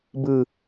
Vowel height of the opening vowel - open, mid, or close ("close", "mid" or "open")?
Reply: close